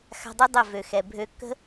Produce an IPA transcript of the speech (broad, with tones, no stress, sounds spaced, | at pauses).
x a̤˧ dˤ y˦ dˤ ə˦˨ v ø˨ x ɛ˨ bʱ ø˦ kː ə̤˦